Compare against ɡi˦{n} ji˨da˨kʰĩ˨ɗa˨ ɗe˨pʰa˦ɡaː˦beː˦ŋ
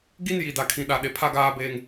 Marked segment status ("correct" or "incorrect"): correct